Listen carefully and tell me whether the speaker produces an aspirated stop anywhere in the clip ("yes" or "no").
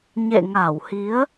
no